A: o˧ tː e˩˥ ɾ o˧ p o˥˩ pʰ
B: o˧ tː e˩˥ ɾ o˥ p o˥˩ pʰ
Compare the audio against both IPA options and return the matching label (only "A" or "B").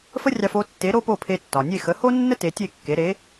B